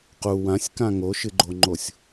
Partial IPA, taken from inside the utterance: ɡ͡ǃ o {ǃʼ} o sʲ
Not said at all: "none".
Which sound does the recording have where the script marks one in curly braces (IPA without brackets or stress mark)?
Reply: ŋ͡ǃ